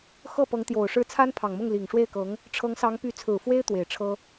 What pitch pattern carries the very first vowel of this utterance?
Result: falling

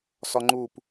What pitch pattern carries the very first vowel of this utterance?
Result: high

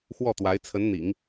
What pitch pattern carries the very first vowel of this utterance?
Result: falling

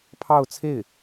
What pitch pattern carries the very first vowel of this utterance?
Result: falling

